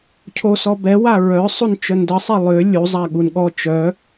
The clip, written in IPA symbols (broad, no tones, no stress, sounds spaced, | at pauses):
cʰ o s ɔ b ɛ w a ɹ œ sˤ u n t͡ʃ œ n d ə sˤ e lˠ ø lʲ u zˤ a ɠ u n ɠ ɔ t͡ʃ œ